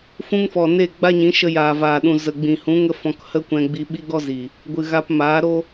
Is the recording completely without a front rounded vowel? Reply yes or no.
yes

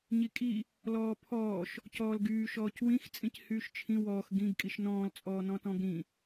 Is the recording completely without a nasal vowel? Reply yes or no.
no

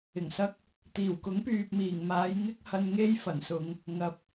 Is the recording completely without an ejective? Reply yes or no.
yes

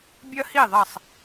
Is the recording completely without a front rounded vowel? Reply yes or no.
yes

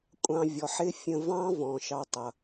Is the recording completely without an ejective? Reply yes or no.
no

